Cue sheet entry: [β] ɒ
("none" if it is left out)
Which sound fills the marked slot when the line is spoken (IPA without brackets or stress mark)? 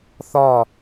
θ